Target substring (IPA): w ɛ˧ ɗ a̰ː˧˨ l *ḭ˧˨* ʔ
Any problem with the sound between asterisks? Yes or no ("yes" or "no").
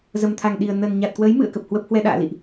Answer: no